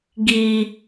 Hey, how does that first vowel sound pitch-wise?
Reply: high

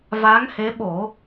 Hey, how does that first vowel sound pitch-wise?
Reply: rising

